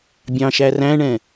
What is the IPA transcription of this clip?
bʲ ɑ̃ ʃ æ r æ̃ ɳ ɛ̃

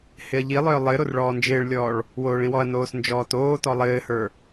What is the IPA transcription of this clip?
h ɪ ɐ̯ ʎ i lˠ œː lˠ ɘ ɾ o r ɭ ɔː n d͡ʒ ɪː ɭ lʲ ɔː ɭ | w oː ɭ ĩ w ɔ ɐ̯ n oː s n d͡ʒ ɔː t oː t ɔ lˠ ɘː h ə˞

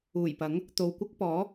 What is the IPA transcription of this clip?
uː˨˩ j p ɐ˨˥ ŋ | t̪ o˨ w kʷ ɐ˥ k̚ p ɔː˨˥

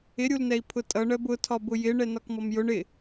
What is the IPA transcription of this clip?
ɪ ɾʲ u l n ɛ i̯ pʰ ʊ tʼ ʌ ɳ ɜ b ʊ tʰ ɒ b ʊ j ɪ ɳ ɛ n ɒ k m ɔ m j ʊ ɳ ɪ

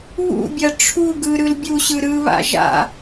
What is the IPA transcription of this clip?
β ṵ bʲ ɐ ʈ͡ʂʰ u ɡ ɯ ɾ ɯ l bʲ u ɕ ɯ ɾ ɯ β a̰ ʒ a̰

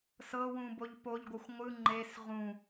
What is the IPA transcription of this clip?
s ɤ w ũ b o ʎ p o ʎ ɡʷ ɤ xʷ ŋʷ ɯ ŋ͡ǃ e s ʁ ũ

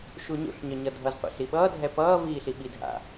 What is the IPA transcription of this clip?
ʃ u ɲ ṵ ɬ ɲ œ ɲ ʌ dʱ ʌ z qʷ a̰ ɬ i ɓ ʌː dʱ ɛ p ʌː v iː ɬ i ɓ i dʱ a̰

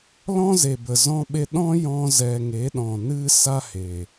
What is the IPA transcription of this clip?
l ɔ̃˦ z e˨ b ə˨ z ɔ̃˧ ɓ e˧ ɗ ɔ̃˦ j ɔ̃˦ z ɛ˧ ŋ e˨˦ ɗ ɔ̃˨ n ɨ˦ s a˦ h e˨

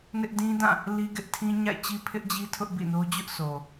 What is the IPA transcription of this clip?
n ɪ˦ ʔ d ĩ˦ d ã˦˨ | l i˦ ɡ ɪ˦ ʔ tʰ ĩ˦ ɲ a̰˦˨ ɪ̯ t͡ɕ i˦ pʰ ɪ˦ ʔ d͡ʑ i˦ tʰ ʊ˦ ʔ b ḭ˦˨ n o˦ d͡ʑ ʊ˦ ʔ s o˨

